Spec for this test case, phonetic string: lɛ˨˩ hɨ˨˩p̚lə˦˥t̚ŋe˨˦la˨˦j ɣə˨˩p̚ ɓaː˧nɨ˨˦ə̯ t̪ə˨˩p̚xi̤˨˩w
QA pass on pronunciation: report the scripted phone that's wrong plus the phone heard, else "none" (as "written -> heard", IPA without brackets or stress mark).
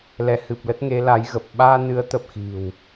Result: ɛ˨˩ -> ɛ˨˦